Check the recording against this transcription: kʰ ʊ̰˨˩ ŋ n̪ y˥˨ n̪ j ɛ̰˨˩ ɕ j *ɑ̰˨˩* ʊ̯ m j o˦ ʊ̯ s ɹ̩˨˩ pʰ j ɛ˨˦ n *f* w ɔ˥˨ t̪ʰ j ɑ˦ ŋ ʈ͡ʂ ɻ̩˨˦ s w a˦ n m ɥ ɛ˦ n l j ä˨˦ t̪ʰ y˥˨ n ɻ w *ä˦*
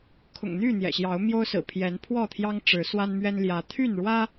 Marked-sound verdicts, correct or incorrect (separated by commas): incorrect, incorrect, correct